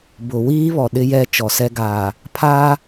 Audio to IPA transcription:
b ʊ˨ w iː˦ β ɔ˨ ɗ ɪ˦ j ɛ˦ t͡ʃ ɔ˨ s ɛ˦ ɡ aː˨ | pʰ aː˦

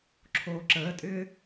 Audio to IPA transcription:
ǁʰ oː ǁ əː tʼ ʏː

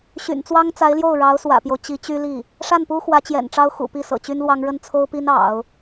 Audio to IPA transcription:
ɕ y̰˨˩ n t͡s w ɑ˥ ŋ t͡s a˧˥ ɪ̯ l j o˥˩ ʊ̯ ɻ ɑ˧˥ ʊ̯ s w ä̰˨˩ p j o˦ ʊ̯ t͡ɕ i˧˥ t͡ɕ y˥ l i˥˩ | ʂ a˥˩ n p u˥ x w ä˧˥ t͡ɕ j ɛ̰˨˩ n ʈ͡ʂ ɑ˥ ʊ̯ x ṵ˨˩ p i˥˩ s ɤ̰˨˩ t͡ɕ y˥ n l w ɑ˥ ŋ ɻ ə˥˩ n t͡sʰ o˥ ʊ̯ p i˥ n ɑ̰˨˩˦ ʊ̯

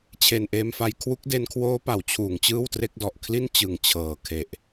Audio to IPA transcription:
t͡ɕʰ e˨˩ n ʔ eː˧ m f a˧ j kʰ w u˦˥ k̚ d e˧ n kʰ w oː˦˥ p a˩˦ w t͡ɕʰ uː˩˦ ŋ t͡ɕ ɯː˥˩ w t r e˦˥ k̚ d ɔ˨˩ ʔ kʰ l i˥˩ n t͡ɕ ɯ˨˩ ŋ t͡ɕʰ ɤː˨˩ kʰ e˨˩ ʔ

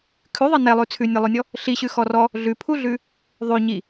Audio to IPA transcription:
kʰ ʉ ðˤ i n ɛ lˠ ʉ t͡sʰ ʉ nʲ ɛ lˠ ʉ nʲ ɔ | ɬ i ɕ ʉ x ɔ r ɔ | ɮ ʉ pʰ u ɮ ʉ | ðˤ ʉ ɲ i

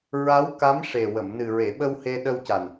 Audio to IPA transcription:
ɹ a˧˥ w k a˧˥ m ʂ e˨˩ w ə˨˩˨ m n ɨ˨˩ ɹ e˨˩˨ ɓ ə˧ w h e˧ ɗ ə˧ w c a˨˩ n

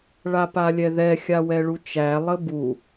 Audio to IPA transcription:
ɭ a p a lʲ ɛ ð ɛ xʲ a w ɛ ɭ u t͡ʃ æ lˠ ə b u

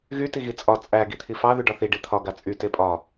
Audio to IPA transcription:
ɣ y t i ɣ i t͡sʼ ɒ t͡sʼ æ ɡ i t̪ʰ i f ɑ ð y ɖ ɒ θ i ɖ i t̪ʰ ɒ ɡ a t͡sʼ y t e pʼ ɒ

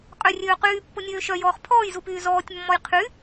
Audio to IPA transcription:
qʼ ø rʲ øː q yː pː o nʲ øː ʃ œ j ɔː χ pʰ ɔː j z u p yː z ɔː tʲ mː ɔ j qʰ y

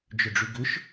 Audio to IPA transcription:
d͡ʒ ʏ ɖ͡ʐ y ɡ ʏ ʃ

